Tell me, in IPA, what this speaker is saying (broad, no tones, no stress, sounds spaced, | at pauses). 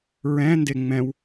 ɹ ɛ̃ n d e ŋ͡m ɛ̃ w